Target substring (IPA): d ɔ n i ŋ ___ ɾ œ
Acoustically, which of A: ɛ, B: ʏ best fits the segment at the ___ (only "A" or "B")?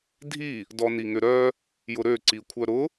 B